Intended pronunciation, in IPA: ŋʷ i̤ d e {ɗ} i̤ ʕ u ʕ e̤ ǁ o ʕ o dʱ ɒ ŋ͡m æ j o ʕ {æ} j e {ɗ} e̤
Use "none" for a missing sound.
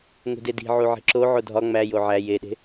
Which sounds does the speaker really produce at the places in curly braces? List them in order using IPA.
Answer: d, æ, ɗ

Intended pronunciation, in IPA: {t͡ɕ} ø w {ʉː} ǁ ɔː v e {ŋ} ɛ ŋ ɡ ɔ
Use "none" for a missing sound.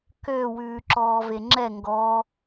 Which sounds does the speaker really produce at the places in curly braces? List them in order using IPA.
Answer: k, ʉː, ŋ͡ǁ

